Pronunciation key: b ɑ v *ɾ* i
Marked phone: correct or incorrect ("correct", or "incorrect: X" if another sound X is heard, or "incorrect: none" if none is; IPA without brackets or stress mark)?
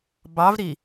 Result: correct